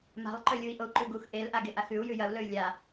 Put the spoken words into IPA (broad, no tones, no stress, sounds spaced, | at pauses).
m a̤ lˠ ǃ ɵ lʲ u i̯ ʔ o u̯ ǃ ʉ ɡ u x ʔ e l ʔ a ɡ e ʔ a x ʉ u̯ j ʉ j ɐ u̯ l ɵ y̯ lʲ a